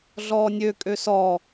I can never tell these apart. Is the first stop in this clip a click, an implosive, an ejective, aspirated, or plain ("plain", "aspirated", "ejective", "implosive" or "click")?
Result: ejective